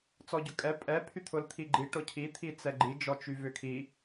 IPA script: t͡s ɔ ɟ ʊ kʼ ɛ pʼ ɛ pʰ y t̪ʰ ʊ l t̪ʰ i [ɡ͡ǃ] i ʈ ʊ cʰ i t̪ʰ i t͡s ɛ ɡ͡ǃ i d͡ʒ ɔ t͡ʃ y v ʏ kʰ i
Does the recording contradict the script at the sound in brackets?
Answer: no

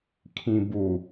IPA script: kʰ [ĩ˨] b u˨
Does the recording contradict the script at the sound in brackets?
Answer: no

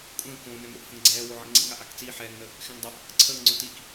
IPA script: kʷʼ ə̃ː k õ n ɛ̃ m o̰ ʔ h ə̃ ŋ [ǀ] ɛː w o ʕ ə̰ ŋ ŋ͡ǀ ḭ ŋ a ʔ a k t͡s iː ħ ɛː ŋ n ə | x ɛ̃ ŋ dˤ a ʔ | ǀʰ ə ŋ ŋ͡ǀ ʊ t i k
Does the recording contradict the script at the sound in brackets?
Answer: yes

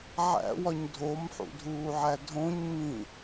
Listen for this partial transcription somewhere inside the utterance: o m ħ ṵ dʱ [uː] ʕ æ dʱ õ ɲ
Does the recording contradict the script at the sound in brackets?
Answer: no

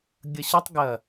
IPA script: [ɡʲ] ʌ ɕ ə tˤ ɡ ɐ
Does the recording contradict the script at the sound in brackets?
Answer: no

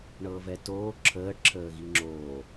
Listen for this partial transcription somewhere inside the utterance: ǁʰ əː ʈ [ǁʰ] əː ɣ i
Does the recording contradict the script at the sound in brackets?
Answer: no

